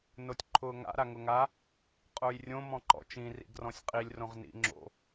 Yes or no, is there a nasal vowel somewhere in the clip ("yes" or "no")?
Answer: yes